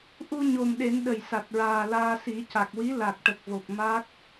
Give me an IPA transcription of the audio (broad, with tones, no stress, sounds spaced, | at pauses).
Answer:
ʔ u˧ ɲ o˨˩ m ɗ e˨˩˦ n ɗ ə˨˩ j s a˨˩ t̚ ɹ aː˨˩ l aː˧ s i˨˩˦ c a˨˩ k̚ w i˧˥ l a˨˩ k̚ ʈ ə˨˩ k̚ v o˨˩ k̚ m a˦˥ k̚